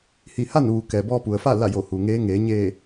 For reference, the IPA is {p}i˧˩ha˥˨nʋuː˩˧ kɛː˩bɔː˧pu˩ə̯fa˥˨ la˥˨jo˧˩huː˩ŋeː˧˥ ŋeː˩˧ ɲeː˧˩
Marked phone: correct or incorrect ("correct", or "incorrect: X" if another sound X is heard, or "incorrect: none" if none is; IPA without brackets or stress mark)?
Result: incorrect: h